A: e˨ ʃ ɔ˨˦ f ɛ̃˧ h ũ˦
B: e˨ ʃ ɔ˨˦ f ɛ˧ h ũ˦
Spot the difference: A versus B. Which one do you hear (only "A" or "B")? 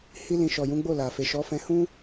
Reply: A